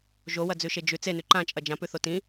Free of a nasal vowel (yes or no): no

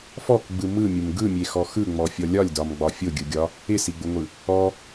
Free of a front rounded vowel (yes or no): yes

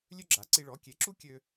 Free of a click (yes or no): no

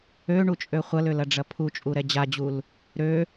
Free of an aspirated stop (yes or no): no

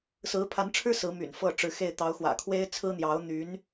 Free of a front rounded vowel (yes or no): no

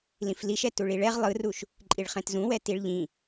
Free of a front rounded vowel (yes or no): yes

